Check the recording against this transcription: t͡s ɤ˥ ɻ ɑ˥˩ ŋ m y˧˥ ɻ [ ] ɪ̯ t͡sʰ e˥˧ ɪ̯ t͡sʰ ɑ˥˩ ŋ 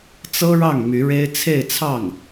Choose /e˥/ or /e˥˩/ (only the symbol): e˥